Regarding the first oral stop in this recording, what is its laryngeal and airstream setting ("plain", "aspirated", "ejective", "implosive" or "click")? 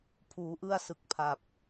aspirated